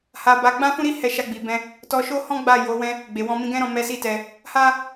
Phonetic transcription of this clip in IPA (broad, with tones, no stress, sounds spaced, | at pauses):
h a˧ b a˧ ɡ͡b ã˦ f ũ˦ ɾ i˦ h ɛ˧ ʃ a˧ ɡ͡b i˨ b ɛ̃˧ | t ɔ˧ ʃ o˦ h ɔ̃˦ ɡ͡b a˦˨ j o˨˦ w ɛ̃˦ | ɡ͡b e˨ w ɔ̃˧ m ĩ˧ ɡ ɛ̃˦ ɾ ɔ̃˧ m ɛ˦ s i˦ t ɛ˧ | h a˦